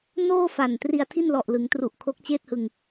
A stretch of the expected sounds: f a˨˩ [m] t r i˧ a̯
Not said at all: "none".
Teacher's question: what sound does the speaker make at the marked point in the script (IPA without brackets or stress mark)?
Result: n